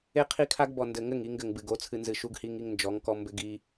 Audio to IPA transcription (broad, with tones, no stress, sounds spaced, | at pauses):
e˦ qʰ i˦ kʰ a˦ ɡ b ɔ˨ n d ɘ˨ ŋ ɘ˦˨ ŋ i˦ ŋ ɡ ɘ˨ ŋ b ɨ˨ ɡ o˨˦ t͡sʰ ɨ˨ n z ɨ˨ ʃ u˦ ɡ h i˦ ŋ i˦ ŋ n d͡ʒ ɔ˨˦ ŋ k ɔ˦ m b ɘ˦ ɡ i˦